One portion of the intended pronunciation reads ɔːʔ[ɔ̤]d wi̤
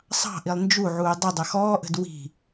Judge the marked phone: incorrect: ə̤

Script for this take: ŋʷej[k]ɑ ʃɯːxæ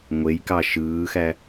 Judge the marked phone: correct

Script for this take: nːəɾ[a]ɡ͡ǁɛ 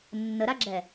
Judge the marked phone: correct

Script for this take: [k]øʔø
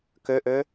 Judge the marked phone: correct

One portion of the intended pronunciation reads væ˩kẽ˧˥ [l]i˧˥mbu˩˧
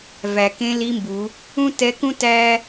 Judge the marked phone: correct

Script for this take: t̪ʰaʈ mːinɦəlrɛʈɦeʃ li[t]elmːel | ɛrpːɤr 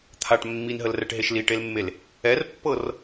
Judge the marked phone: incorrect: ʈ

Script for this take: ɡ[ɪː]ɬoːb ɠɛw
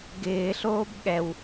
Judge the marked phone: correct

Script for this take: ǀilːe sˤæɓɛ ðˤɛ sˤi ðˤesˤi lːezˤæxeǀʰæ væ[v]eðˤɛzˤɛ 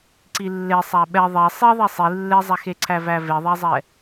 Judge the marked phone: correct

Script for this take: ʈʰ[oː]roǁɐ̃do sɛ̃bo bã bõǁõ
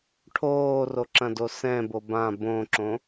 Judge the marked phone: correct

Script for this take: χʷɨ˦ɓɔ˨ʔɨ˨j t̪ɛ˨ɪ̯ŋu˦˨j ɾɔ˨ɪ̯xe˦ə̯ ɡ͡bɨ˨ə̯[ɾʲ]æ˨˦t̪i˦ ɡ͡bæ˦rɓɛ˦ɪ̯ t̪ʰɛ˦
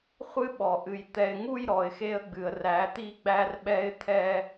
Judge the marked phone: incorrect: r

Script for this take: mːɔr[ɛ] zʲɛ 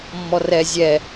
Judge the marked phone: correct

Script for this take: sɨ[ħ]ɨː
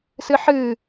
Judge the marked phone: correct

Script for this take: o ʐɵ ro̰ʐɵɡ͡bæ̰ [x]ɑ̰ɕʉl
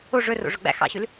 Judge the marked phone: correct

